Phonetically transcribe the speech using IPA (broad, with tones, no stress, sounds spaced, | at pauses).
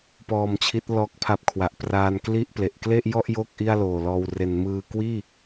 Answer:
p ɔː˧ m t͡ɕʰ i˦˥ t̚ l ɔː˦˥ k̚ pʰ a˦˥ p̚ kʰ w a˨˩ ʔ p r aː˧ n k l i˥˩ ʔ p l e˨˩ ʔ k l e˥˩ ʔ j ɔ˥˩ ʔ j o˥˩ k̚ ʔ i˥˩ a̯ l oː˨˩ l ɔː˧ w r e˩˦ n m ɯː˧ k w iː˥˩